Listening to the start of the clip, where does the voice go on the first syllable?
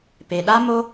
low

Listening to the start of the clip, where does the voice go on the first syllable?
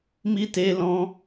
high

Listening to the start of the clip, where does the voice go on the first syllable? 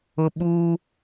high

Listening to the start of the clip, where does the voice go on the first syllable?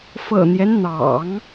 low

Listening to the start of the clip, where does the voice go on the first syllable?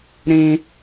high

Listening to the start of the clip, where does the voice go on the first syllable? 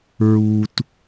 low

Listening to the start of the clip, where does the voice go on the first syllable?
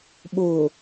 low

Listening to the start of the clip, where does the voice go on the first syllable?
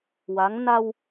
rising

